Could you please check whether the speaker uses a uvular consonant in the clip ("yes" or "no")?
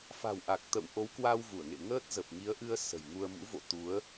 no